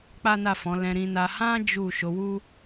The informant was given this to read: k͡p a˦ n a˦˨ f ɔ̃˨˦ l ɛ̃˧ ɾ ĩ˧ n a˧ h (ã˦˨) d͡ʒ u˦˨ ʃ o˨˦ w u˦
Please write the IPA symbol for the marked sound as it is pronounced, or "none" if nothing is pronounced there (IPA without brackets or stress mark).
ã˦